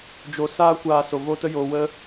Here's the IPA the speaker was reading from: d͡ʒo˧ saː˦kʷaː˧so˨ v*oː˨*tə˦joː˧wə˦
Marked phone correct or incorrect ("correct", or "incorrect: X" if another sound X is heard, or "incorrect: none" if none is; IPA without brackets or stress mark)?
incorrect: oː˦